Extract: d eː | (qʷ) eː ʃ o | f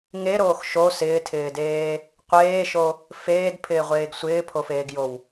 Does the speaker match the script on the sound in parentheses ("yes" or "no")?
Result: yes